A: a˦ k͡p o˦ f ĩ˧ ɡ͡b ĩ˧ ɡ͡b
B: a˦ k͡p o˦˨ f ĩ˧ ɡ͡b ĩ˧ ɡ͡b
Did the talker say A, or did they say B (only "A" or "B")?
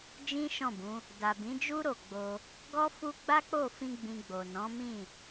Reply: B